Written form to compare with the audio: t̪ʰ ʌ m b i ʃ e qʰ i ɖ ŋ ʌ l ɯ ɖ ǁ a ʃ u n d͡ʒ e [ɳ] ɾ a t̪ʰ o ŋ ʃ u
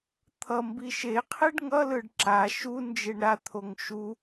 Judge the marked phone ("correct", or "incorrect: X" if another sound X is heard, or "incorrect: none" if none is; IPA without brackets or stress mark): correct